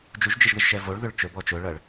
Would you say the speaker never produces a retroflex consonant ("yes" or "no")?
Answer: no